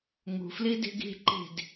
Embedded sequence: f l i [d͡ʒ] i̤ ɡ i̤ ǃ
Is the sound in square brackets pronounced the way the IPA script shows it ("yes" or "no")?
no